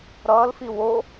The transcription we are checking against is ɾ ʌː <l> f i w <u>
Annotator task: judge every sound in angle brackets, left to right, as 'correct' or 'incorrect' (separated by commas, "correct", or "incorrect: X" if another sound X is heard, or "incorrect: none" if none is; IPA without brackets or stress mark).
correct, incorrect: o